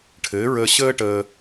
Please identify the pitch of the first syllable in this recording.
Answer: rising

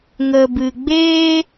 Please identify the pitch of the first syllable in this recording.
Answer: low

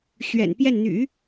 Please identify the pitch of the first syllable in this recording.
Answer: low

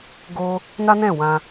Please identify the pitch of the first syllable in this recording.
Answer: high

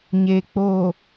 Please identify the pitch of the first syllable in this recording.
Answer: low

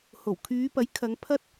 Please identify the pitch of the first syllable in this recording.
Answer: low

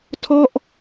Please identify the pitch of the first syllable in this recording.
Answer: falling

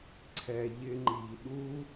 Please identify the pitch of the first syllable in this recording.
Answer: low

